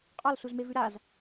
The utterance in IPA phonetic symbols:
qʼɒlsuzmevʉ ɾaz

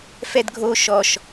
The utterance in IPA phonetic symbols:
fɛdɡʱo ʃɔʃ

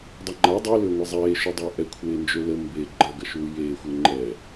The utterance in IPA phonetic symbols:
dˤɐŋ͡ǃa dˤilʏːŋʷi zˤeːʃu dˤɪːʔɛ kʷʰeːnd͡ʒølə mbe ɡ͡ǃɐ ɡɐʃuːjeːxʷɪː ŋ͡ǃɛ

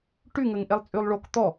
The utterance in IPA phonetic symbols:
ʈyŋəŋ ʔelˠt͡sʼylˠɭok t̪ɔ

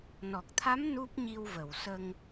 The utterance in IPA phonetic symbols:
nɔ˨˩k̚t̪ʰa˧˥m nu˦˥p̚ɲi˧wvə˨˩˨w sə˧ŋ

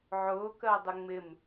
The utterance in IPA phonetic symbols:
ʕʊːkɜdˤɪ ŋ͡mɪm

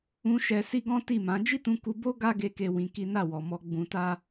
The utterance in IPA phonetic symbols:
ũ˧ ʃɛ˧si˦ɡɔ̃˦ ti˦˨mã˨˦ d͡ʒi˦tũ˧ku˧bo˦ ɡa˦ɡe˧ ke˦wĩ˧ki˦ na˦˨wɔ˨mɔ˧ ɡ͡bũ˧ta˦

